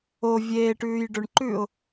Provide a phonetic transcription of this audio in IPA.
o vʲ eː ʈ ʉː j ɖ ɵ ɳ ǃ ʉː ʊ̯

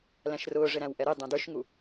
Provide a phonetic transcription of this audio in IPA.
l æ̃ ʃ r ʊː ʐ ɪ ɾ æ̃ w ʔ ɛ ɾ i dˤ ɛ̃ d ə˞ ʃ ŋ u

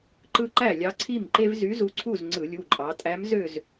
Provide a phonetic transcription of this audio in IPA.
ǃ ɯ˦ ǃ æ˥˩ lʲ ɑ˨˥ ǀʰ i˥˩ m ǃ e˦ v z y˨˥ z u˨˥ ǀʰ u˥˩ z ŋ͡ǀ ɯ˧˩˧ lʲ u˩˧˩ ǃʼ ɑ˩˧ tʼ æ˨˥ m z ø˥˩ z

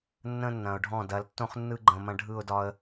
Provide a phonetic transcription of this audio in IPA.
nː ə̃˦ nː ɐ̃˨ ʊ̯ ɖʱ ɔ̃˦˨ d ɐ˨˦ l tː õ˦ χ nː ɯ˦ ɡ͡ǃ ə̃˨ m ɐ̃˦ ɖʱ ɯ˦˨ ʊ̯ d ɒ˦ ə̯

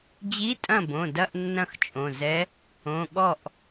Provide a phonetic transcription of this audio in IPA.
d͡ʑ i˧˥˧ tʼ ɐ̃˥˩ b õ˩˧˩ d ɐ˧˥˧ ʔ nː ɐ̃˥˩ x t͡ʃʼ õ˩˧˩ z ɛ˧˥ | õ˩˧˩ ɠ ɔ˥˩ ʔ

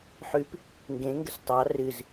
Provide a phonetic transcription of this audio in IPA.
ħ ʉ p | ŋ ɡ ẽ ŋ ɡ ə s tˤ ɑ r ɨ z

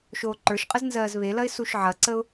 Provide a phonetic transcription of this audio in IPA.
ʃ oː ǃ ə˞ ʃ qʼ ə z n z ɜː z β e l ɐ ɪ̯ s u ʃ ʕ ɐ ǀ ə ʊ̯

